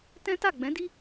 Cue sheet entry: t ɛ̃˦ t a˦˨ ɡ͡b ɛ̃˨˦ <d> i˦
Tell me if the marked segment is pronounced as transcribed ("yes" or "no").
yes